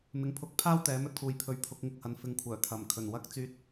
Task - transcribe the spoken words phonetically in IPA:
m ɪ˨ ŋ pʰ ʊ˨˥ k̚ pʰ aː˥ w t̪ ɛː˨˥ m ɵ˧ t̚ kʰ uː˨ j pʰ ɵ˨ ɥ pʰ ʊ˨˥ k̚ ŋ ɪ˧ k̚ h ɐ˨˧ n f ɪ˨ ŋ kʷʰ œː˨˩ t̪ʰ ɐ˨˩ m kʰ ɵ˨˩ n w ɐ˧ k̚ t͡s yː˧ t̚

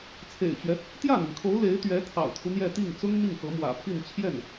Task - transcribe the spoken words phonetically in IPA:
t͡sʰ ḛ˨˩ ɪ̯ t͡ɕ ɥ ɛ˦ | t̪ j ä˥˩ n̪ i˩ ŋ kʰ o˧˥ ʊ̯ l e˧˥ ɪ̯ t̪ ɥ ɛ˧˥ t̪ʰ ɑ̰˨˩ ʊ̯ t̪ʰ u˦ n̪ j ɛ˥˧ t̪ i˥˩ ŋ t͡s ʊ˥ ŋ n̪ i˥˩ ŋ x ɤ˧˥ m w ä̰˨˩ pʰ i˥˧ n t͡ɕʰ j ɛ˥˩ n

